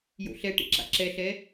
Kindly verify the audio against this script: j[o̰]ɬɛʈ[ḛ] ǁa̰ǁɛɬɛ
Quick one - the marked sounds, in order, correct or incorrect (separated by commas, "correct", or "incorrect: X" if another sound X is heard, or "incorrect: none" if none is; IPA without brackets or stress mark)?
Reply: correct, correct